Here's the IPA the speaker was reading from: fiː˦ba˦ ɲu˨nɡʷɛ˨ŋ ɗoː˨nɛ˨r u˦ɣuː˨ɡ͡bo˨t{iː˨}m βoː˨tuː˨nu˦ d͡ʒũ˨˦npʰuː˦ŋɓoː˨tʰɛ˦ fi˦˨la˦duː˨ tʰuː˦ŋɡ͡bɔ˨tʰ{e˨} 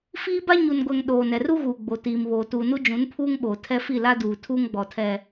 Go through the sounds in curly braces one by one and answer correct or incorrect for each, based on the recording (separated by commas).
correct, incorrect